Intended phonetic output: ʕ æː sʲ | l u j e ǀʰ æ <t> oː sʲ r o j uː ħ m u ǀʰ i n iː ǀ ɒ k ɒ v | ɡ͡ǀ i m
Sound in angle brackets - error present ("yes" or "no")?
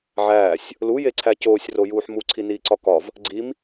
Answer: yes